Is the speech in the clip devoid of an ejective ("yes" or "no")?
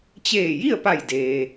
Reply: yes